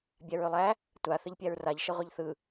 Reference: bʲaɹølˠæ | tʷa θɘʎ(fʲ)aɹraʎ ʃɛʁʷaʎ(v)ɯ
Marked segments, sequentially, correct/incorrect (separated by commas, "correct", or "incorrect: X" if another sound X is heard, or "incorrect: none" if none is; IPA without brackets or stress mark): incorrect: pʲ, incorrect: θ